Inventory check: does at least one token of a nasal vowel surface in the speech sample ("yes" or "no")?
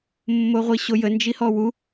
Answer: no